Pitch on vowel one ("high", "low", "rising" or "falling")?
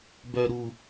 low